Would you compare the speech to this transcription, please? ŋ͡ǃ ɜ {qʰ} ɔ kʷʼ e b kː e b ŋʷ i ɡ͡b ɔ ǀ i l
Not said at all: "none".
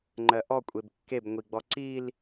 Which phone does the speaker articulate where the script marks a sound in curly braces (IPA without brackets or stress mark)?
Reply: ʔ